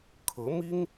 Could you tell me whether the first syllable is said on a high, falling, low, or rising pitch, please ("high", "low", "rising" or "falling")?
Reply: rising